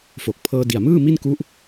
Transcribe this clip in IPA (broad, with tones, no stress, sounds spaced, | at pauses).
f o˨˩ k̚ pʰ ɤː˧ d i˨˩ a̯ m ɯː˥˩ m i˥˩ n k u˦˥ ʔ